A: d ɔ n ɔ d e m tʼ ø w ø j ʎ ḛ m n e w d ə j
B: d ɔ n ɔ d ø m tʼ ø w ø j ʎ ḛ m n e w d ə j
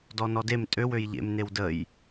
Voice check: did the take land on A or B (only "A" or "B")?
A